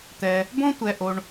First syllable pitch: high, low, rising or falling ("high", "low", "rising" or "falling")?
low